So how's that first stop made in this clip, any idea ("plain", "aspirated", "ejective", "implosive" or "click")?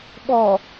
implosive